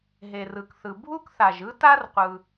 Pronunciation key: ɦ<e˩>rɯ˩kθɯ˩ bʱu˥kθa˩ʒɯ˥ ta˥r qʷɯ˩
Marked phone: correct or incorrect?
correct